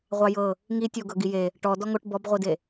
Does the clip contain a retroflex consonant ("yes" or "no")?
yes